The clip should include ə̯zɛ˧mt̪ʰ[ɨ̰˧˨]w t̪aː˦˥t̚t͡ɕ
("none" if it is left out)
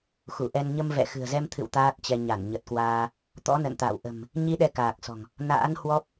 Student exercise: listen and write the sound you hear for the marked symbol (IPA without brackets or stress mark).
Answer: ɨ̰˧˨